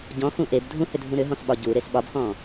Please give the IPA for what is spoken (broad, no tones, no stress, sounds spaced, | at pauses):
ɟ ɔ̃ x ũ ʔ e b dʱ ũ h ʏ dʱ ũ ɾ ʏ ɦ ɔ̃ s ɓ ɒ ɟ u ɾ e s ɓ ɒ b x ɔ̃